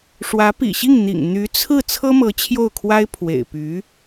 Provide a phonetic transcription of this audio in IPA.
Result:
ʂ w ä˧˥ p ḭ˨˩ ɕ i˥˩ ŋ n̪ ḭ˨˩ ŋ n̪ y˧˥ t͡sʰ ɹ̩˥˩ t͡sʰ ɤ˥ m ɤ˧˥ t͡ɕʰ j o˥˩ ʊ̯ kʰ w a˥ ɪ̯ pʰ w ḛ˨˩ ɪ̯ p y˧˥

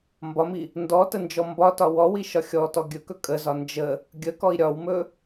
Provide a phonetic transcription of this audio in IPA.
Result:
m b ɒ m i | n d ɔ t ə n d͡ʒ ɔ m b ɒ t ɒ w ɔ w i ʃ ɒ xʲ ɔ t ɔ ɡʲ ɵ k ɵ kʼ ə z ɒ n d͡ʒ ə | ɡʲ ə k ɔ i̯ ɾʲ ɒ w m ɵ

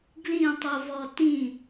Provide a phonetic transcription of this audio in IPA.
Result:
ɡ l ĩ tˤ u v ɔ t ĩ

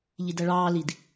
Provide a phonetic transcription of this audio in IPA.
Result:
ʎ i d æ ɭ ɑː l i d

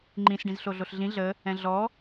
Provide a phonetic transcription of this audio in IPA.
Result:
ŋ͡ǃ ĩ s ɖ ĩ z ɬ o ɮ o ɬ ɮ ĩ ɮ ə | ɛ̃ ɮ ɔ

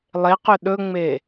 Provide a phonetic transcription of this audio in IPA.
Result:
lˠ e q ʏ ɗ ɵ ŋ͡m e

